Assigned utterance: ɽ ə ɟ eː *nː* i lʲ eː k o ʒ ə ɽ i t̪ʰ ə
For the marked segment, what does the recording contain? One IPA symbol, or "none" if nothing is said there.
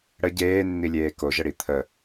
nː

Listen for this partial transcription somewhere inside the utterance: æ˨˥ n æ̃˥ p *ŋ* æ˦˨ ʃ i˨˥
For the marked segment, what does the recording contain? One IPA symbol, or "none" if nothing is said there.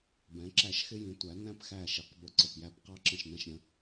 x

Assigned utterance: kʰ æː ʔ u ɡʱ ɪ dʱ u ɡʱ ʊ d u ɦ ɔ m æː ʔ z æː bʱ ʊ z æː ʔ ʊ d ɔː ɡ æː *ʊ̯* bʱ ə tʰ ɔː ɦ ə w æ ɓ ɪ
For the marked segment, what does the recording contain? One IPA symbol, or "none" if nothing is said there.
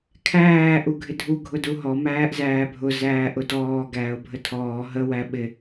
ʊ̯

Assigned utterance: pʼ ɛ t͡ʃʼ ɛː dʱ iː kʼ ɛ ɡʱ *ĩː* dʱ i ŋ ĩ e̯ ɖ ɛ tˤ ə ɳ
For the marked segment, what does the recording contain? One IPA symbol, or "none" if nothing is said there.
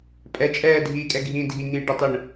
ĩː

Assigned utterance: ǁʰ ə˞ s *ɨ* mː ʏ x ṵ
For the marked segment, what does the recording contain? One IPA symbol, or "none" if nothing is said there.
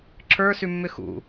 ʉ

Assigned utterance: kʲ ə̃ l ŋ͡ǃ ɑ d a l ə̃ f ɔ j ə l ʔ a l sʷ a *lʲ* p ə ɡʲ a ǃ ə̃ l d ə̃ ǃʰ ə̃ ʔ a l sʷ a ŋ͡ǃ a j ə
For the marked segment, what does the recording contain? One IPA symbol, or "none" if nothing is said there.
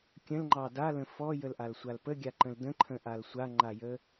l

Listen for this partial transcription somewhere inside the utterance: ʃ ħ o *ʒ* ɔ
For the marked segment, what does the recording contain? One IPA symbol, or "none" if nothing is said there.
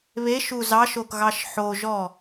ʒ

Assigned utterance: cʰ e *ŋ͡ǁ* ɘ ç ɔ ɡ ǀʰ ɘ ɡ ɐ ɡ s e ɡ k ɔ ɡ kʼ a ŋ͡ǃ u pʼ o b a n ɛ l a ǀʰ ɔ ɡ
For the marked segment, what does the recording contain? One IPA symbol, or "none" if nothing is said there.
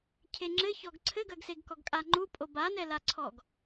ŋ͡ǁ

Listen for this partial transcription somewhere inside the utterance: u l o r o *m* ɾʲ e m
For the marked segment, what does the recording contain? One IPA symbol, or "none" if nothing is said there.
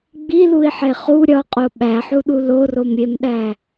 m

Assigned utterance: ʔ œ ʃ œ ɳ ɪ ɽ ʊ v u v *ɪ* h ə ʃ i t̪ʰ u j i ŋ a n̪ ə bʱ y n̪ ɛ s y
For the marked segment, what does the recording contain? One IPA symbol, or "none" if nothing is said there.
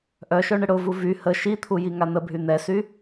y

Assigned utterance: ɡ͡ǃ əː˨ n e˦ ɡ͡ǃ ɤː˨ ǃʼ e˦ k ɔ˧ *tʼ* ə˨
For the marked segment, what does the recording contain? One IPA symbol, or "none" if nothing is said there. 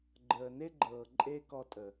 tʼ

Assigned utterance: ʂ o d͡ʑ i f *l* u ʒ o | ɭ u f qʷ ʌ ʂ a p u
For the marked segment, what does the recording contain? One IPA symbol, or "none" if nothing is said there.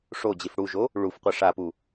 ɽ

